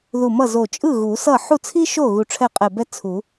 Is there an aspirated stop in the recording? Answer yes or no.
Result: yes